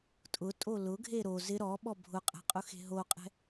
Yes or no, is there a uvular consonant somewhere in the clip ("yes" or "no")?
yes